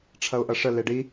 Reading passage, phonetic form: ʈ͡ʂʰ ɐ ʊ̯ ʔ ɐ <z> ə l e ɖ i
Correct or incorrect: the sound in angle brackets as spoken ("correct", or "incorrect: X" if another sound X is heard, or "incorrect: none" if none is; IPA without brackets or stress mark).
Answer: incorrect: ʂ